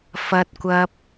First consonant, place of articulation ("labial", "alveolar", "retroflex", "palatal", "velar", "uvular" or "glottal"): labial